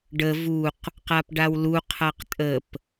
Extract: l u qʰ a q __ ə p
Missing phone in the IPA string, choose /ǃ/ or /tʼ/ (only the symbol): tʼ